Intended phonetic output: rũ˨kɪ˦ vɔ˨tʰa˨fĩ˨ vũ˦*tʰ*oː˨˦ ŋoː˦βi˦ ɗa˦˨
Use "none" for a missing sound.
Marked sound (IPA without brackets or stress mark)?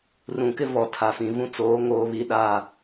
t͡s